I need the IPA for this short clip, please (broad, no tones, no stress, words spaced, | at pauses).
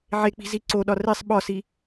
ʕek͡pi̤ ziǀoɗɒ resˤ ɓɒsi